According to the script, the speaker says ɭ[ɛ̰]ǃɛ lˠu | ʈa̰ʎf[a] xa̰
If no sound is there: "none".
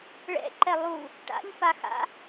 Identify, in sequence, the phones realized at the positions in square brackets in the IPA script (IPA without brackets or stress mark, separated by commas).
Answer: ɛ̰, a